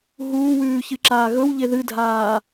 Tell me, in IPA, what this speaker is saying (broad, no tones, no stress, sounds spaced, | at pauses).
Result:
ɦ uː w ʉː ç ɨ ǁ aː ɣ ɵ w ʎ e ð ɨ dʱ aː